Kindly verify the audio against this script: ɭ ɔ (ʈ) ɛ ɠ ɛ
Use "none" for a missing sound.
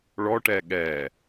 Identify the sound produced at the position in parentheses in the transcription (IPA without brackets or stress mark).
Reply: ʈ